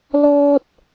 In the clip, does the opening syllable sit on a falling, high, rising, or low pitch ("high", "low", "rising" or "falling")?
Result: high